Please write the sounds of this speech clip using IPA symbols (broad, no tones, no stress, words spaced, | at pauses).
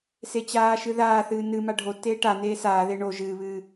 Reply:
set͡ɕaːʃɨ ðaːθɨː nɨ maɖʱotːeː ʈaneː saːðe ɳo ʒɨːβɨː